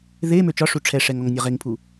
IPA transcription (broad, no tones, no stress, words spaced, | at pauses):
ðe møt͡ʃɒʂu ʈ͡ʂʰɛʂɛŋɔŋ nʲɒʁeŋpʰu